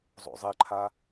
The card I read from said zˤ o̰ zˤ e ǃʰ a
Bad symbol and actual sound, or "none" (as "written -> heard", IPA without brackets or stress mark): none